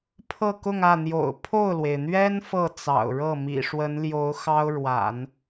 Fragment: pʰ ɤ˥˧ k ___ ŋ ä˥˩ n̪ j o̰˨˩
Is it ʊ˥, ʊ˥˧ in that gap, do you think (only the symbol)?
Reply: ʊ˥˧